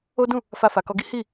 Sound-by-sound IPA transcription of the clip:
o˦ d ũ˦˨ | f a˧ f a˨ k ɔ˧ ɡ i˦ h i˦˨

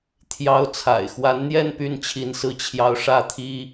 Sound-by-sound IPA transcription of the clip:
t̪ʰ j ɑ˧˥ ʊ̯ t͡sʰ a̰˨˩ ɪ̯ x w a˧˥ n n̪ j ɛ˥˧ n p y˥˩ n t͡ɕʰ i˧˥ n s ɹ̩˥˩ t͡ɕʰ j ɑ˥ ʊ̯ ʂ ä˥˩ t̪ʰ i˥

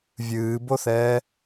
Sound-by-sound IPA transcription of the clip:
vʲ ɨː b o θ ɛː

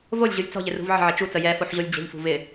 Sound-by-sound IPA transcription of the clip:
v o lʲ ʑ u lʲ t͡s ɔ̤ ʎ ɪ r ṳ v ʕ ə̤ ʕ ɪ t͡ʃ u t͡s ə j ɛ f o ħ ʑ o lʲ d͡ʑ ə̤ ʎ f ṳ v ɪ

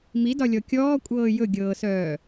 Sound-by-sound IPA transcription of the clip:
m i d ɒ lʲ ɔ kʲ ɔː kʷʼ ɤː j ɵ ɡʲ ɤː s œː

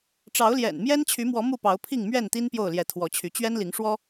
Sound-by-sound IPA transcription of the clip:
ʈ͡ʂ ɑ˨˦ ʊ̯ l j ɛ̰˨˩ n m j ɛ˦ n t͡ɕʰ y˨˦ m w ɔ˨˦ m u˥˨ p ɑ˨˦ ʊ̯ pʰ i˥˨ ŋ m ɥ ɛ˥˨ n t̪ i˦ n p j o˥˨ ʊ̯ l j ɛ˨˦ t̪ʰ w ɔ˨˦ t͡ɕʰ y˨˦ t͡ɕ ɥ ɛ˦ n l i˨˦ ŋ ʂ w ɔ˦

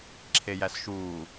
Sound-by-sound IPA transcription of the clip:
ǁʰ e j æ s ʃ uː

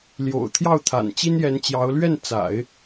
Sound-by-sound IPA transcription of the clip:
l j o̰˨˩ ʊ̯ t̪ʰ j ɑ˥˩ ʊ̯ t̪ʰ a̰˨˩ n t͡ɕ i˥ n j ɛ˧˥ n t͡ɕ j ɑ˧˥ ʊ̯ l ɥ ɛ˥˩ n t͡s a̰˨˩˦ ɪ̯

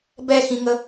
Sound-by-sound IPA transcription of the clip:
b ɛ x ĩ ŋ ə

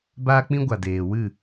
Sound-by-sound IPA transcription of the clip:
b aː˦ k͡p ĩ˦ ɡʷ a˨ d eː˨ w ɨ˦˨

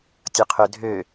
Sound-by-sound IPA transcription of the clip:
tʲ ʊ qʰ ʏ dʱ ø

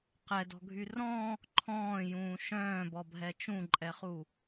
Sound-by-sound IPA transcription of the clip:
q ɛ d ɔ̤ ɡʱ y r ɔ̃ | ǃʰ ɔ̃ː j ũː ʃ œ̃ː b ɔ bʱ ɛ t͡ʃ ũ ǃʼ ɛ χ u

